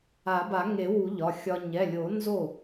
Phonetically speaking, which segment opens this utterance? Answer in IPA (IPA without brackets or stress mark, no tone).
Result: a